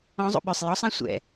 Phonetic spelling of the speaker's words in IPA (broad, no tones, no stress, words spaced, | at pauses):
ɔ̃zˤṵ ɓœsˤ jɔsˤã sʷɛ̰